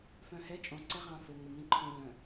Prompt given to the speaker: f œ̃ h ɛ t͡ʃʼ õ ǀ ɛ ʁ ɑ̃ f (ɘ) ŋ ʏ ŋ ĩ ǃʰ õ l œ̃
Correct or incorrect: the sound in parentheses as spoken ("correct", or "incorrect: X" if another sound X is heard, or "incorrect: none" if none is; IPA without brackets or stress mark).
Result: correct